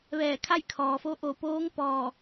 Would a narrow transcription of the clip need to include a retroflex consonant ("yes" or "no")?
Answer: no